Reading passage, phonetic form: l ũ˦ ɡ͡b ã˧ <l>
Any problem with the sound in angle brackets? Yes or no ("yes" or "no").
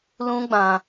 yes